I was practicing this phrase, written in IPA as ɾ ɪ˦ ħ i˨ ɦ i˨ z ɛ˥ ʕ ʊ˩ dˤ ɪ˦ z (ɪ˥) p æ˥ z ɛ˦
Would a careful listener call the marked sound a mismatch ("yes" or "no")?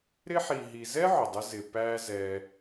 yes